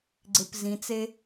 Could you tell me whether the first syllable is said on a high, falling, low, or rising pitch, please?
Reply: low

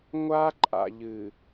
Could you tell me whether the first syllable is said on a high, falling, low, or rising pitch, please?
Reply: high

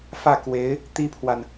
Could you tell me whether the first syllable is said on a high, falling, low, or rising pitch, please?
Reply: falling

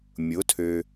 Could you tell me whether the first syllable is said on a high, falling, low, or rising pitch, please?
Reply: rising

